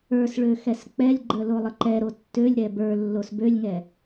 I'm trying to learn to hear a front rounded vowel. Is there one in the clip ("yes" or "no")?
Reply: yes